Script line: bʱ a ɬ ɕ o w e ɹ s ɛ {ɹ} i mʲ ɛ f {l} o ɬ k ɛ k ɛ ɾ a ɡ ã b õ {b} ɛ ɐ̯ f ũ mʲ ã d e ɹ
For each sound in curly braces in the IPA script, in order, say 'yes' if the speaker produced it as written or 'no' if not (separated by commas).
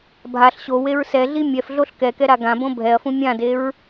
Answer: no, no, no